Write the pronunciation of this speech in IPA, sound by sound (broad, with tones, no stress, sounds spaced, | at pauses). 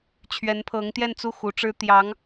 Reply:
t͡ɕʰ ɥ ɛ˧˥ n pʰ ɤ˧˥ ŋ t̪ j ɛ˥˧ n t͡s u˥˩ x u˧˥ ʈ͡ʂ ɻ̩˥ t̪ j ɑ˧˥ ŋ